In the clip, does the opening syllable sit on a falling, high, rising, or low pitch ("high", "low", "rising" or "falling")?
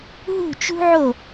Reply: falling